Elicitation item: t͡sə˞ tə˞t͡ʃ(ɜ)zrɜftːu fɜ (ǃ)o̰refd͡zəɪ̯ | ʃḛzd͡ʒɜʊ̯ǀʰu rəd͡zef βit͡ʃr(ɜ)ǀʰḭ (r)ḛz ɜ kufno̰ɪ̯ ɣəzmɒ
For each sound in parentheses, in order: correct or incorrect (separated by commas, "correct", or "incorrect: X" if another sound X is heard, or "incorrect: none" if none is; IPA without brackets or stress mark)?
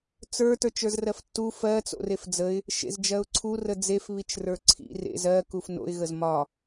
incorrect: ə˞, incorrect: t͡s, incorrect: ə˞, correct